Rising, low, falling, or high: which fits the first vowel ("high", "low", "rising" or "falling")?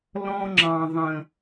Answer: high